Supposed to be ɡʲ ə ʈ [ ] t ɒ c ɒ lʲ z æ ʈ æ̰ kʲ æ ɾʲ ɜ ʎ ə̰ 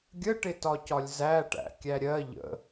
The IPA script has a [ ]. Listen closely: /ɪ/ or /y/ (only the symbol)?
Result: ɪ